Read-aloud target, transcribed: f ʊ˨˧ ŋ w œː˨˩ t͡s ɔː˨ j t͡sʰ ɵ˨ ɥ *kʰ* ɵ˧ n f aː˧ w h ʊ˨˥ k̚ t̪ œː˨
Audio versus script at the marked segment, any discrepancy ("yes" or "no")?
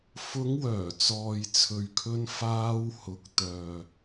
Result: no